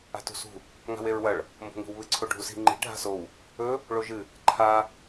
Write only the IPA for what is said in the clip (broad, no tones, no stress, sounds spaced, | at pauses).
a̤ t ṳ s ṳ | ŋ a̤ w e ɹ w ɐ ɭ | m b o̤ ŋ i̤ w β ɨ ǀʰ o ɖʱ u s i̤ ŋ͡ǃ i̤ ɖʱ a̤ s o w | ɵ | ɭ o ʒ ɨ | ǃʰ a